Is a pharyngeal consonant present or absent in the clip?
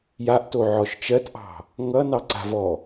present